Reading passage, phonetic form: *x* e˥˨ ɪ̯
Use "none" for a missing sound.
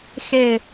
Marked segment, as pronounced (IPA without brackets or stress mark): x